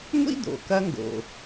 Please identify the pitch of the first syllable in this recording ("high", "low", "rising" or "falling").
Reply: high